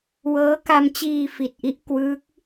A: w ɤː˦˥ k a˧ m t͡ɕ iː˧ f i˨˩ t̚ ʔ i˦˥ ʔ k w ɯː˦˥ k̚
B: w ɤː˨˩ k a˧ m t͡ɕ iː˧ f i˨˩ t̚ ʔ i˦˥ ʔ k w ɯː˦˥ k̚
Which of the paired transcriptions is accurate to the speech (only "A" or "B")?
A